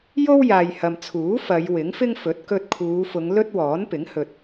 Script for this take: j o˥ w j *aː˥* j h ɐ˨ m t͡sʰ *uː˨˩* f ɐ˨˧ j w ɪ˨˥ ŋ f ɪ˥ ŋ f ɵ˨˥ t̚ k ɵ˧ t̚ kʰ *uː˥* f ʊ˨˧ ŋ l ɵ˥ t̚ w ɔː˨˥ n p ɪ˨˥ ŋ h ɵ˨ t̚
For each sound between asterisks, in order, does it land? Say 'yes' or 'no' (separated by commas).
no, no, no